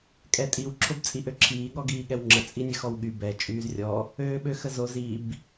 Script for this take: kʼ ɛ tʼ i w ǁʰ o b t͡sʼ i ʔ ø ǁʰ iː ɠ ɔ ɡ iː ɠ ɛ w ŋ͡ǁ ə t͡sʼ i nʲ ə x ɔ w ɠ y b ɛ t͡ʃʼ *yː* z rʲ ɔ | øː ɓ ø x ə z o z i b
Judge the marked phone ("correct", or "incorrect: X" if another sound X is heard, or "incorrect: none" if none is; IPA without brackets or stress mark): correct